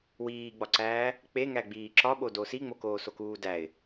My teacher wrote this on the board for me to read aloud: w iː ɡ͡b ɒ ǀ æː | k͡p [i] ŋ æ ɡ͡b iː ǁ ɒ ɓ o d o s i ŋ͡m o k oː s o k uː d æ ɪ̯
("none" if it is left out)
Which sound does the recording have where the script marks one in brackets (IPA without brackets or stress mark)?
e